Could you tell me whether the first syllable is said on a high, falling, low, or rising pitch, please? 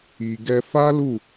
low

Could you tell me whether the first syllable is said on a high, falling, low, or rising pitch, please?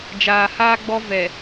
low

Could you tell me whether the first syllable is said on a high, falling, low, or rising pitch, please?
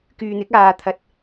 low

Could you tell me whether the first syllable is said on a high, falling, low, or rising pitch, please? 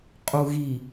low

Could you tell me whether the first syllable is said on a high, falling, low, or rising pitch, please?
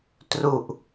low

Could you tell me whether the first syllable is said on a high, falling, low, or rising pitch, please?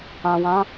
low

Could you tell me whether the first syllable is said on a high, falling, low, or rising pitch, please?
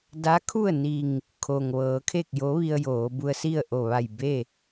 rising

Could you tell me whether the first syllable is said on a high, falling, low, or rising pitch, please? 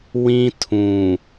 high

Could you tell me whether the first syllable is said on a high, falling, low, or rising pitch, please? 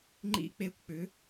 falling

